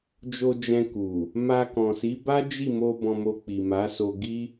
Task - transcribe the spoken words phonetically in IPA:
d͡ʒ o˧ d͡ʒ ɛ̃˧ k u˨ | m a˧ k ɔ̃˨ s i˨˦ b a˦ d͡ʒ i˦˨ m o˧ b ɔ̃˧ m o˧ k͡p i˨ m a˨˦ s o˧ ɡ i˦

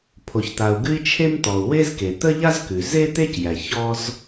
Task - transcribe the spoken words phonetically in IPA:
pʰ o˩ ç t̪ a˩ u̯ ɡ ʉ˥ i̯ t͡ʃʰ e˥ m t̪ ɔ˩ u̯ w e˥ z k e˩ t̪ ə˥ ʎ a˥ z k ʉ˩ z e˥ t̪ e˥ c j æ˩ ç ɔ˥ z

